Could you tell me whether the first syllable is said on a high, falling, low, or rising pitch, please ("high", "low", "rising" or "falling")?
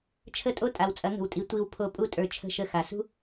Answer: falling